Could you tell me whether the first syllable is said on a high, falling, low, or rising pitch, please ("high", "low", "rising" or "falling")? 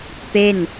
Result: falling